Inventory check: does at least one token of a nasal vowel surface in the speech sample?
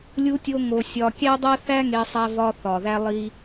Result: no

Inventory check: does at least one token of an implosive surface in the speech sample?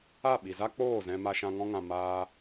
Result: yes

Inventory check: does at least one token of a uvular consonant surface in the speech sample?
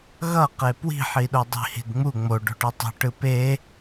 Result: yes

